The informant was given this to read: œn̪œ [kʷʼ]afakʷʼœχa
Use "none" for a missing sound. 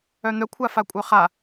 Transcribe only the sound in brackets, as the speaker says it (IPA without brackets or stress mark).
kʷʰ